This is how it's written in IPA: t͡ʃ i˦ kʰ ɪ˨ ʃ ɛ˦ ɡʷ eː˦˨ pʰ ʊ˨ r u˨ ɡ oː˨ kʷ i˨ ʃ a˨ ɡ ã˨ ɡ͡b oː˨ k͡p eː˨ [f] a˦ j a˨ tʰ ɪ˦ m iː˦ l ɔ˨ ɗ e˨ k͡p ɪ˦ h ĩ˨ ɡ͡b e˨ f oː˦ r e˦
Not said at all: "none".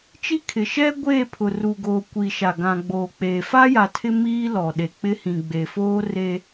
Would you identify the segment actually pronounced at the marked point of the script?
f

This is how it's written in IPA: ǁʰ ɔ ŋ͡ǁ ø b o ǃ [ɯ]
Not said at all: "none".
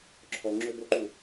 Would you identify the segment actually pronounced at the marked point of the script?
u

